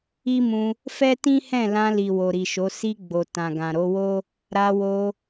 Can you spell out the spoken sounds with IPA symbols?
i˦ m ũ˧ | f ɛ˦ t ĩ˦ h ɛ̃˦˨ l ã˧ l i˨ w o˨ ɾ i˨ ʃ o˨˦ s i˧ ɡ͡b o˨ t ã˨ ɡ ã˨ ɾ o˨˦ w o˦ | ɾ a˧ w o˧

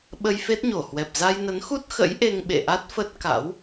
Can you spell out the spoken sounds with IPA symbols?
ɓ ə˧ j f e˦˥ t̚ ɲ o˧˩ h w ɛ˨˩ p̚ z a˧ j n ə˨˦ n x u˦˥ t̚ x ə̰˧˥ j ʔ e˧ ŋ ɓ ḛ˧˨ ʔ a˦˥ t̚ f ə˦˥ t̚ k a̰˧˥ w

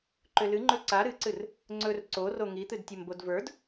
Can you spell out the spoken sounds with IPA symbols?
ǃ ʏ l ɨ ŋ͡ǃ ɵ ǀ a ɾ ɨ ǀ ɨ r | ŋ͡ǀ ɵ r ǀ o r o ŋ i t̪ ɨ d tʲ ɵ m b o d v ə˞ d

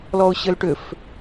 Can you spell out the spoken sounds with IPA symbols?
l ɔ ʊ̯ ɕ ɘ l ʈ ʏ f

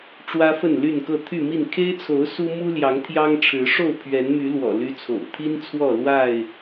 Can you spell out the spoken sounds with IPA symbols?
ʈ͡ʂ w ä˦ f ə˥˨ n l y˥˨ n k ɤ˥˨ t̪ʰ y˥˨ m i˥˨ n kʰ e˦ ɪ̯ t͡sʰ o˨˦ ʊ̯ s u˦ m u˦ l j ɑ˨˦ ŋ t̪ʰ j ɑ˦ ŋ ʈ͡ʂʰ ɻ̩˨˦ ʂ o˥˨ ʊ̯ pʰ ɥ ɛ˨˦ n m y˨˦ l w ɔ̰˨˩ l y˦ t͡sʰ o̰˨˩ ʊ̯ t̪ʰ i˦ n t͡sʰ w ɔ˥˨ l w a˥˨ ɪ̯

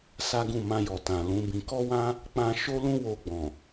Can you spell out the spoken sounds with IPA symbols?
s a˦ ɡ ũ˦˨ m ã˧ j ɔ˨ t ã˨ l ũ˨˦ b ĩ˧ k ɔ˦ w ã˦ | k͡p ã˦ ʃ o˦ l ũ˦ w o˧ ɡ͡b ɔ̃˨

